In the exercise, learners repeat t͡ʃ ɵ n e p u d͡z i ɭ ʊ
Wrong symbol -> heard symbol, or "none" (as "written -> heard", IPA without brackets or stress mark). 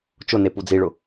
ɵ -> ʊ